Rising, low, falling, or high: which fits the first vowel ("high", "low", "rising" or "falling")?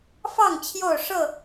falling